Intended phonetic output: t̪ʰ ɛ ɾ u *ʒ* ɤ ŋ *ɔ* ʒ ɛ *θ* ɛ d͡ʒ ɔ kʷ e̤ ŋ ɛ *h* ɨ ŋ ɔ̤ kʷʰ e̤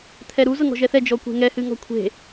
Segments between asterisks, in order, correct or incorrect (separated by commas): incorrect, incorrect, correct, correct